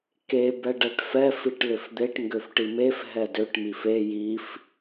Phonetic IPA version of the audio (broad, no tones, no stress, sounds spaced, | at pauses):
k e b ɛ ɖ ɛ ʈ f ɛ f i ʈ l ʏ f d̪ e ʈ ŋ ɡ ø f ʈ i m e f ɦ ɛ d ø ʈ m i f e j i f